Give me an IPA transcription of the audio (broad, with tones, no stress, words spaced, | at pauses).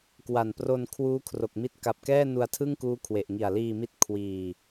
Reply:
kwa˨˩npro˧n kʰwuː˦˥kʰro˨˩k̚mi˦˥t̚ ka˨˩p̚kɛː˥˩nu˧a̯ tʰɯ˥˩ŋkuː˦˥kʰwe˨˩ʔ ŋi˨˩a̯liː˧mi˦˥t̚ kʰwiː˧